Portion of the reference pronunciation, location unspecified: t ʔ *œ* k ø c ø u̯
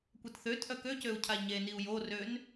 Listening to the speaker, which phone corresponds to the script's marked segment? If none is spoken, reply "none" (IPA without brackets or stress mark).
œ